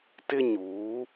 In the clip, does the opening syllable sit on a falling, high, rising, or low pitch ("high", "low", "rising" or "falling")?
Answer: high